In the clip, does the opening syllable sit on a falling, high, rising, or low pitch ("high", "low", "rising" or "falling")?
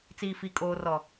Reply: low